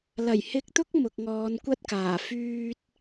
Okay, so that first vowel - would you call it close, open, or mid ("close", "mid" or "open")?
open